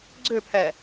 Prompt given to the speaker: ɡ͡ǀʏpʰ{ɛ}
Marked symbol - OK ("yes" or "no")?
yes